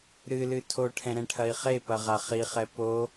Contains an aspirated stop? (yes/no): yes